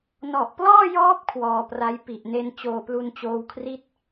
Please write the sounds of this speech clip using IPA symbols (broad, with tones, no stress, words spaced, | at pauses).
nɔ˨˩ʔplɔː˥˩jɔː˦˥p̚ kʰwɔː˧pra˦˥j pi˨˩ʔne˧n t͡ɕoː˧plu˧nt͡ɕoː˧wkʰri˥˩t̚